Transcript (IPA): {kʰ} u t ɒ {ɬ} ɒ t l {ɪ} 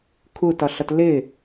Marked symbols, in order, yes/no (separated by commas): yes, yes, yes